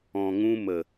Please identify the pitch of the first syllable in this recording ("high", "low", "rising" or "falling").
low